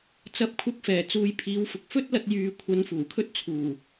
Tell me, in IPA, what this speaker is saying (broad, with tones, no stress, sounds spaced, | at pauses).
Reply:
t͡s ɐ˧ p̚ kʷʰ ɐ˧ k̚ f ɛː˨˩ t͡s uː˨˧ j pʰ iː˨˧ w f ʊ˨ k̚ f ɵ˥ t̚ l ɐ˧ t̚ j yː˨ kʷʰ ɐ˨˧ n f uː˨˩ kʰ ɵ˥ t̚ t͡sʰ uː˨˩